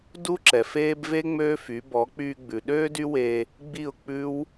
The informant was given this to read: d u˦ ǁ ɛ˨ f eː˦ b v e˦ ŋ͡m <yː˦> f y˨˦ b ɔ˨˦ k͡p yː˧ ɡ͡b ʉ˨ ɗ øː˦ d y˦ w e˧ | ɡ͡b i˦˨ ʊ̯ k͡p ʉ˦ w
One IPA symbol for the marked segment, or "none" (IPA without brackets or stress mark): øː˦